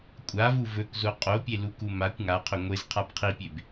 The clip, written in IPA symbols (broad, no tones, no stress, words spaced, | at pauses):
kʷʼavu vɵkzo qʼopʲeluku makʷ ŋaqʰɵ ŋʷezqʰab qʰipʲeb